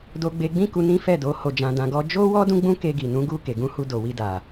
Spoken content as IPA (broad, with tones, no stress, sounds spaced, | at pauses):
d o˧ ɡ͡b e˧ ɡ͡b ĩ˦ k u˧ n ĩ˦ f ɛ˦˨ d o˨˦ h o˧ d͡ʒ ã˧ d ã˧ ɡ ɔ˦ d͡ʒ o˦ w ɔ˦ d ũ˦ ɡ͡b ũ˦ k e˧ ɡ i˨ n ũ˨˦ ɡ u˧ k e˨ ɡ ũ˧ h u˧ d o˨ w i˧ d a˨